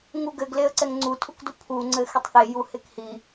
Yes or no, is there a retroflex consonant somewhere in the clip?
no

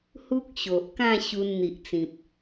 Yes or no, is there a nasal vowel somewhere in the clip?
yes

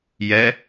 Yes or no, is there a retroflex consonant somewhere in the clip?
no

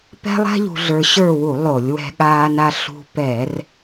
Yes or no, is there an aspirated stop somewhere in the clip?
no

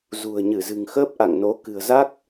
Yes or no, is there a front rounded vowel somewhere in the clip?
no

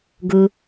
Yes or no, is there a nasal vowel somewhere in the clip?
no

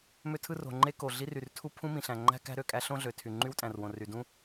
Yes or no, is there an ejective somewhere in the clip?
yes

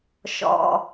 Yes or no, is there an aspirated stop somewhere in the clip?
no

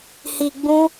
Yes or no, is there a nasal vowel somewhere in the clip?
yes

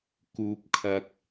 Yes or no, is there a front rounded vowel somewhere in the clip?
no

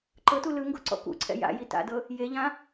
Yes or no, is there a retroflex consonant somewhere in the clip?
no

